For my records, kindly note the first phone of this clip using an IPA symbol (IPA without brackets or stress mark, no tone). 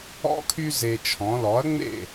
ɔ̰